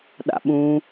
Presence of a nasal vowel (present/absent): present